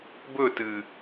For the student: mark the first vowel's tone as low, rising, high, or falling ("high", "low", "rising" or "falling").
falling